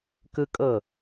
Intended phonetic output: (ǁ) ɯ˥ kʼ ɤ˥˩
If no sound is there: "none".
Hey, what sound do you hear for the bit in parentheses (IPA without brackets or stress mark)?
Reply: k